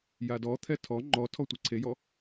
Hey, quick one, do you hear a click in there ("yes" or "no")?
yes